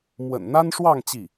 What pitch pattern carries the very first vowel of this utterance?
low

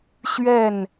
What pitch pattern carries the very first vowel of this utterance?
falling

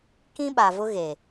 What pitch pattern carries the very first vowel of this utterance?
high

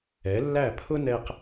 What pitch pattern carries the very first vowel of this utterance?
rising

